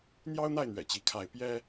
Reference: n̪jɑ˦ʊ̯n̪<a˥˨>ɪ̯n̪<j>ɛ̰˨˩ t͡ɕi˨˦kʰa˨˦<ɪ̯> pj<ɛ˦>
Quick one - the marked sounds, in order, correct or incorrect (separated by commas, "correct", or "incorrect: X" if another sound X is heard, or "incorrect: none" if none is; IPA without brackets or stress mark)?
correct, incorrect: ɥ, correct, correct